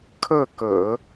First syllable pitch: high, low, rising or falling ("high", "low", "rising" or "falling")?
falling